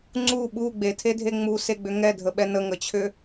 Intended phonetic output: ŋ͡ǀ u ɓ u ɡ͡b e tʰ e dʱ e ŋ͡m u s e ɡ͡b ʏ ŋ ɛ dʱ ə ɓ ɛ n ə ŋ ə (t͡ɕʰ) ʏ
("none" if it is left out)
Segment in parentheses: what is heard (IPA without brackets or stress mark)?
t͡ɕʰ